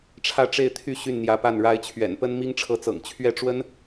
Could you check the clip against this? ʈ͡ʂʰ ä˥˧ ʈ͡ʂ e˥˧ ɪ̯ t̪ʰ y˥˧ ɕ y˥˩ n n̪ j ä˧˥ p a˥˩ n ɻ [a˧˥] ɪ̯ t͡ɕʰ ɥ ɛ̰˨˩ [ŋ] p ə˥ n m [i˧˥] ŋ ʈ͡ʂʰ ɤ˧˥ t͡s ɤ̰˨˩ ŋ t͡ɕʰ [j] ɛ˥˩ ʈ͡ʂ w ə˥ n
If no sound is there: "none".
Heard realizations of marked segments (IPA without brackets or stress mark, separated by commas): a˧˥, n, i˥, ɥ